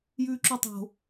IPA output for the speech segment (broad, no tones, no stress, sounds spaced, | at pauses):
j ʉː ǁ u tˤ o̤